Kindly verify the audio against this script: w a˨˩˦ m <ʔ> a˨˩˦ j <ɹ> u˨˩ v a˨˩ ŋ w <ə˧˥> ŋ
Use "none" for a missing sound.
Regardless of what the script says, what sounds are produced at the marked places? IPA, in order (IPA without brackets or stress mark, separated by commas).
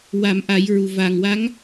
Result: ʔ, ɹ, a˧˥